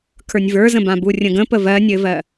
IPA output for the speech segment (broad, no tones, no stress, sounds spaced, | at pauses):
kʰ ə˞ nʲ v ə˞ z ə̃ b ã b u rʲ ə̃ ɡ ə̃ p ə v ɜ nʲ ɘ v ɜ